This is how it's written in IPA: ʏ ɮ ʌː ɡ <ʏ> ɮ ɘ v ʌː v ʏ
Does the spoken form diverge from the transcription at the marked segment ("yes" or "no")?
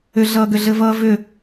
no